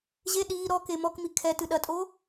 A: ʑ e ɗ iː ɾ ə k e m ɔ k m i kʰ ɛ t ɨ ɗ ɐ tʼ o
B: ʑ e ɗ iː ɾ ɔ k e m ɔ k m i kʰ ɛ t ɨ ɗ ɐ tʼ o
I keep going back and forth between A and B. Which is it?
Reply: B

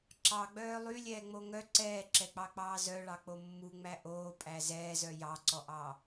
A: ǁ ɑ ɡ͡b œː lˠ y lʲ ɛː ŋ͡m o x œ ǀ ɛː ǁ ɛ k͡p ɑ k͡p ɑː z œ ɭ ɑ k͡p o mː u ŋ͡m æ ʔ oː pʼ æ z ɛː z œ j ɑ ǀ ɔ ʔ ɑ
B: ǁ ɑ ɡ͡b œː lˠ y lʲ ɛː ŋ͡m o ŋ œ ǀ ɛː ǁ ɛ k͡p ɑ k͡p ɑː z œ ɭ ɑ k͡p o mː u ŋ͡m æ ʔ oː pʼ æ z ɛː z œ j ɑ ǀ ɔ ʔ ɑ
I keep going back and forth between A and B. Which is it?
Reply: B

